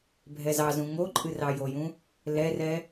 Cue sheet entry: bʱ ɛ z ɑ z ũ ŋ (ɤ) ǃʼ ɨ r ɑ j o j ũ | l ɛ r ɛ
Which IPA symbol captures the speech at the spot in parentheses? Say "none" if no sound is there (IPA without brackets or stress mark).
o